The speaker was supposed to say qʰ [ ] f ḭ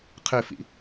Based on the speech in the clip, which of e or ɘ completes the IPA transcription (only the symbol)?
ɘ